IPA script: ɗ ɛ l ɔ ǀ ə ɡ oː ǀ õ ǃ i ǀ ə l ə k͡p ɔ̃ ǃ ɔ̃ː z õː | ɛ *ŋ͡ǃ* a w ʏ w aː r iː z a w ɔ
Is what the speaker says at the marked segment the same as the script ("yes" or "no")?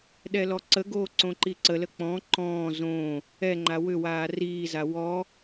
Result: yes